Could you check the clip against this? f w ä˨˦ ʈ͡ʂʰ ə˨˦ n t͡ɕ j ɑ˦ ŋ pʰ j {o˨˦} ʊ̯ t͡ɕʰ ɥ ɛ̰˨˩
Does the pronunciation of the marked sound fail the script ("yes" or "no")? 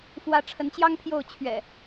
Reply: yes